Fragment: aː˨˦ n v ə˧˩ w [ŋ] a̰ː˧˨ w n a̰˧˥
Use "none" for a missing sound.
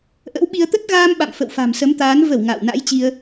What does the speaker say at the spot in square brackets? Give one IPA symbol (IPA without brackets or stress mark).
ŋ